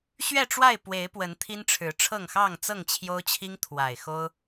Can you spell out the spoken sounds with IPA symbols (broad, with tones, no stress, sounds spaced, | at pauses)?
ɕ ɥ ɛ˥˨ ʈ͡ʂ w a˥˨ ɪ̯ p w e˨˦ ɪ̯ p w ə˨˦ n t̪ʰ i˦ n ʈ͡ʂʰ ɻ̩˨˦ ʈ͡ʂʰ ɤ˥˨ ŋ x ɑ˥˨ ŋ t͡s ɤ˥˨ ŋ t͡ɕʰ j o˦ ʊ̯ t͡ɕʰ i˦ ŋ t̪ʰ w a˨˩ ɪ̯ x o˦ ʊ̯